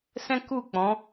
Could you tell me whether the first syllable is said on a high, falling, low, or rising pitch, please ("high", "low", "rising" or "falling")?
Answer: high